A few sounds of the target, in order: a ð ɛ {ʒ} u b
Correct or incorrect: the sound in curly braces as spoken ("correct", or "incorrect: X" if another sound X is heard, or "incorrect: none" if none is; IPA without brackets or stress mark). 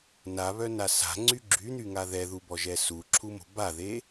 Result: incorrect: ð